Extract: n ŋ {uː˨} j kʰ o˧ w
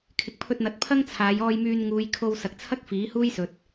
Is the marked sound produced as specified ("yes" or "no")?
no